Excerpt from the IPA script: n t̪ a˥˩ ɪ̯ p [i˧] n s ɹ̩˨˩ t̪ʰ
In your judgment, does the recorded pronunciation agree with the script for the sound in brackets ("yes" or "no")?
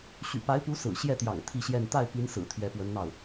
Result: no